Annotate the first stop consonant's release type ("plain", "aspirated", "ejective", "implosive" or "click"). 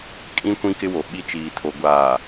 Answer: ejective